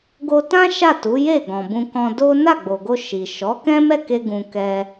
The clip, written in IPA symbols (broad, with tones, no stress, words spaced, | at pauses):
ɡo˧tã˦ ʃa˦˨tu˨˦ je˦˨ ɡɔ̃˨bũ˧kɔ̃˧ do˦ na˦˨ɡ͡bo˨ɡo˧ ʃi˨ ʃɔ˨˦kɛ̃˦ mɛ˦˨ke˧ ɡũ˧kɛ˦